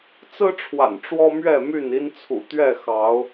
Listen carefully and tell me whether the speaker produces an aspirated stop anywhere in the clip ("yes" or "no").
yes